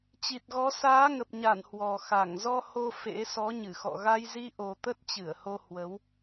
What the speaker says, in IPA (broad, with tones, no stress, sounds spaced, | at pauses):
t͡ɕ i˨˩ t̚ ɣ ɔ˨˦ s aː˨˦ ŋ ə˨˩ p̚ ɲ a˧˩ n h w ɔ˨˩ x a˧˩ ŋ z ɔ˧ h o˧ f ḛ˧˥ s ɔ˨˦ ɲ ɨ˧˩ x ɔ̰˧˨ ɣ a˧ j z i˧ ʔ o˨˩ t̪ ə˦˥ t̚ t͡ɕ ɨ˧˩ ə̯ h o˧ h w ə˨˦ w